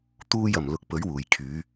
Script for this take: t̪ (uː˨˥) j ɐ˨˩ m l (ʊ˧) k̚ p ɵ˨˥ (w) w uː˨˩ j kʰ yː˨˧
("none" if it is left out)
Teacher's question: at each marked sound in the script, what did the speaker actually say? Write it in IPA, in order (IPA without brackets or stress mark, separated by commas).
uː˧, ʊ˨, ɥ